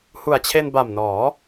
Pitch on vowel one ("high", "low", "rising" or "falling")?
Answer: low